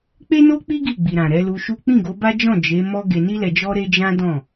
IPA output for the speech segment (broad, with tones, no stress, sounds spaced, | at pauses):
k͡p e˦ n o˦ k͡p i˦ ɡ i˦˨ ɡ͡b i˨ ɾ ã˨ ɾ ɛ˨˦ l u˧ ʃ u˦ k͡p ĩ˦˨ ɡ o˨˦ b a˦ d͡ʒ ɔ̃˦˨ d͡ʒ e˨˦ m ɔ˦ ɡ e˧ n i˦ l ɛ˧ d͡ʒ ɔ˦ ɾ e˦ d͡ʒ ã˦ d ɔ̃˦˨